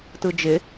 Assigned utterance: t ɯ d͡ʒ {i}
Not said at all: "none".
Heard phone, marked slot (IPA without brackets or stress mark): ɪ